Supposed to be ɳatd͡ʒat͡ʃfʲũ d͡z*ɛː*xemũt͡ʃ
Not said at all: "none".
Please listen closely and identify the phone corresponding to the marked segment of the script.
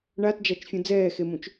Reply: ɛː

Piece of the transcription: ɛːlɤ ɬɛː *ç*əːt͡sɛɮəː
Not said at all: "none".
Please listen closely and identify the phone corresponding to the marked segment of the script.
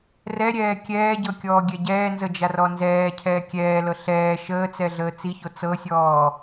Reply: ʃ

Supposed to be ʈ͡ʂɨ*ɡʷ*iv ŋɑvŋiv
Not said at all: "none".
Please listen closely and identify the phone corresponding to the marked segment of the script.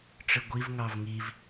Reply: ɡʷ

